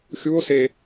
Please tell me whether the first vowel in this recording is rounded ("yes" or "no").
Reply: yes